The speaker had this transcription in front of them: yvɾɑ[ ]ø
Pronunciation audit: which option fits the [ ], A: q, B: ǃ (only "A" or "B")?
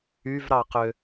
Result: A